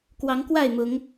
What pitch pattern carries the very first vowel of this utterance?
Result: rising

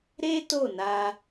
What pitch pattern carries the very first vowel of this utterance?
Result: high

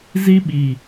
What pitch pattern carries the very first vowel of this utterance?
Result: high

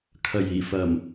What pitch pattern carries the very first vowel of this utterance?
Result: low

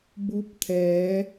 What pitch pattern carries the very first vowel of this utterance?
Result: rising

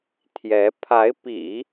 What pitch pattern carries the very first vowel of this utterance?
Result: rising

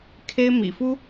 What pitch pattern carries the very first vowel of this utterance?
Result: high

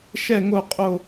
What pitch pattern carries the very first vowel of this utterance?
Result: falling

